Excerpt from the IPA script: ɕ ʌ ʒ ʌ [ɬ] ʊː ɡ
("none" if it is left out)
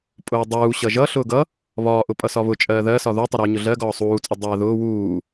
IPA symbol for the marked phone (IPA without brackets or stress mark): ɬ